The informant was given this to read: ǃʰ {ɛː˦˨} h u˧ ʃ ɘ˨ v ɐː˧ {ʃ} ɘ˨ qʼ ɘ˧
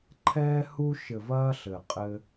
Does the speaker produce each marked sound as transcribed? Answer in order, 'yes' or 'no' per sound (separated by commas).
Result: no, no